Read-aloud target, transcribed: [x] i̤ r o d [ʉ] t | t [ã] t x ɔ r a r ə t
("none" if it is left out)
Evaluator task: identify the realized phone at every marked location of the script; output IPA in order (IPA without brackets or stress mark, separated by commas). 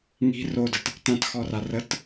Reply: ŋ, ə, ã